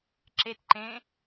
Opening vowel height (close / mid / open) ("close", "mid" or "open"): mid